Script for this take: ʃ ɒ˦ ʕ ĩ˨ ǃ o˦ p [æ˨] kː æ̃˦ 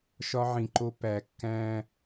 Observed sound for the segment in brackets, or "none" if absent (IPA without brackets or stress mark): æ˨